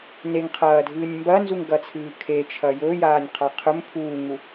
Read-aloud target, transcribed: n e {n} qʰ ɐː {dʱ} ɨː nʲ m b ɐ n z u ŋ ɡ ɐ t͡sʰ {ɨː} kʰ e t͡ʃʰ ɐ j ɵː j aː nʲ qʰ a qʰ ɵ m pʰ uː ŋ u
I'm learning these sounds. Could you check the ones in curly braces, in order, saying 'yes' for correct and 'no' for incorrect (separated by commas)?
no, yes, yes